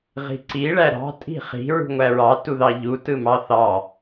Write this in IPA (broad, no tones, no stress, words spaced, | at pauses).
ʁi̤ǀi ɭæɾɑ̤ tʼi̤χi̤ ɹṳŋʷæɹɑ tuðɑʎu tɯmɑθɑ